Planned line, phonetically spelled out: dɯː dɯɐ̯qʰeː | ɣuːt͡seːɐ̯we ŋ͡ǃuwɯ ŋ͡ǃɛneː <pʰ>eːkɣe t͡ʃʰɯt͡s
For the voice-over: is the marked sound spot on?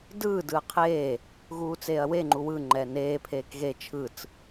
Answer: yes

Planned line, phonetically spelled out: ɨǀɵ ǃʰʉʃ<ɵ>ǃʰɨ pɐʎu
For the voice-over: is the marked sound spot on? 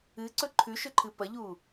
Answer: yes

